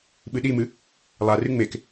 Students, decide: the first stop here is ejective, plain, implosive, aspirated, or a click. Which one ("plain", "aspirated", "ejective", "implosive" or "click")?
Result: implosive